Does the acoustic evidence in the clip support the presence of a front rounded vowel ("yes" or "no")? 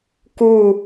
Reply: no